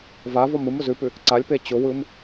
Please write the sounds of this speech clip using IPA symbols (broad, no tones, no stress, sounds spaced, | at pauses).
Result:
v a v ɔ m ɯ m ʊ z ʉ p ʉ | ǀ a lʲ p e t͡ɕ ʊ w ɯ m